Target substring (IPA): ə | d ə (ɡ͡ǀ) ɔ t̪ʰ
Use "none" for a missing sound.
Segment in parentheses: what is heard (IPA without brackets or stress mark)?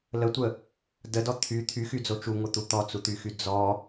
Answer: d